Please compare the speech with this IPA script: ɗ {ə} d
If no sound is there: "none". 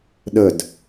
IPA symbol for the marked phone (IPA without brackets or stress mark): ə